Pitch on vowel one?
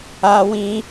high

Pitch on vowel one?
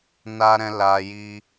high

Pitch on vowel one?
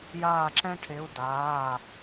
falling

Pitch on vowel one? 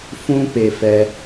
high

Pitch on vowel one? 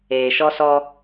low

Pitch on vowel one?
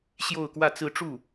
falling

